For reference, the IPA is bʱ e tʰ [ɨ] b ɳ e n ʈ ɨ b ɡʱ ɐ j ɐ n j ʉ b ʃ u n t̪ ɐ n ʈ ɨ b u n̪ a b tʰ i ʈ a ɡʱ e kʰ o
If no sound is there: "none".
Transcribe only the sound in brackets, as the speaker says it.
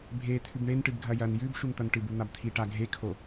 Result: ʉ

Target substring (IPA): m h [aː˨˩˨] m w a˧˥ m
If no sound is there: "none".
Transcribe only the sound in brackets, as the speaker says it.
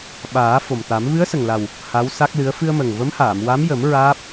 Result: aː˨˩˨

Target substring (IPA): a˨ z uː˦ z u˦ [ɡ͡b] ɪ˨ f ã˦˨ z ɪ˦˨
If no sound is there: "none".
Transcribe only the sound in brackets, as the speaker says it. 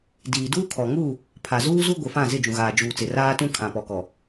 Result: ɡʷ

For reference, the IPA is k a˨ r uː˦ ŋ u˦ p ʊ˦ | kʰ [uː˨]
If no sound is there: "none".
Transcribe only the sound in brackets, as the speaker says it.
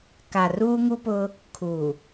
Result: u˨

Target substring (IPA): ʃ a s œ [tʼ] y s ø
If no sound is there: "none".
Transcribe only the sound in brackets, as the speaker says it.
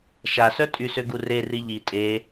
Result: tʼ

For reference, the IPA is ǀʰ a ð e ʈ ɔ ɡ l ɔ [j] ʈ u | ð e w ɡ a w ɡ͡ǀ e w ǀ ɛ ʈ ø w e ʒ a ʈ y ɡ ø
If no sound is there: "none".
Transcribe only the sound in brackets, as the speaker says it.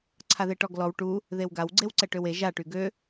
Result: w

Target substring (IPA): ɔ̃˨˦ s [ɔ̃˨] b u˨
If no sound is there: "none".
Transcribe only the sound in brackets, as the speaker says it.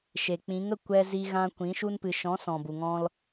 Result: ɔ̃˨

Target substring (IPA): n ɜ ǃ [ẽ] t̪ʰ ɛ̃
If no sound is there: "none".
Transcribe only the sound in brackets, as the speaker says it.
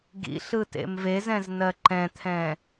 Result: ɛ̃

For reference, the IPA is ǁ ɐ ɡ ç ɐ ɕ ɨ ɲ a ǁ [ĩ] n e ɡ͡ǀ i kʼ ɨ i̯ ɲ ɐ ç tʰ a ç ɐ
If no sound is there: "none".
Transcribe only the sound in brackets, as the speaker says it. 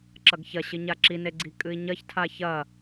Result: i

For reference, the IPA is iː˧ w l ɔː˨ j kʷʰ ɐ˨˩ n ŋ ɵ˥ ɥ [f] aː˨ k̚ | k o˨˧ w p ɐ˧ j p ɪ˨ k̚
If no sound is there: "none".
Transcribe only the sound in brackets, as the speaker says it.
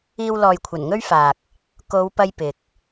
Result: f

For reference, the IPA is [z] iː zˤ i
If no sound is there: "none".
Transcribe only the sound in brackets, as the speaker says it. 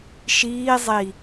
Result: ʃ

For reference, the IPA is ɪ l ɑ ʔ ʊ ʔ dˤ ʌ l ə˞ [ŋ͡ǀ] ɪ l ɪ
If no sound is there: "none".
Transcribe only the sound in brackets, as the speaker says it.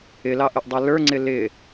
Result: ŋ͡ǀ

